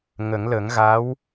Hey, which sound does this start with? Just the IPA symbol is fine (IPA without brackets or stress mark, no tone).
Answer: ŋ